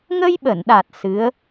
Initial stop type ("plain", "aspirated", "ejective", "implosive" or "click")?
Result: implosive